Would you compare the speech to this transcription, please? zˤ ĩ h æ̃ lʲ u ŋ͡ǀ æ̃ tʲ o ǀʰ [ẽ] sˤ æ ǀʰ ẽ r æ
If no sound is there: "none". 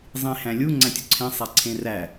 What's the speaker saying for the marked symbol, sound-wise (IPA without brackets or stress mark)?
ẽ